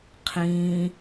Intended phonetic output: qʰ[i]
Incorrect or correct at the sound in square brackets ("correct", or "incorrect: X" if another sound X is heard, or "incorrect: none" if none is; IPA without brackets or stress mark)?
incorrect: ĩ